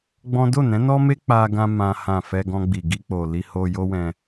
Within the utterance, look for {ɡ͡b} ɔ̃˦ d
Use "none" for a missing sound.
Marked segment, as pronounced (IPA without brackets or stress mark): ɡ͡b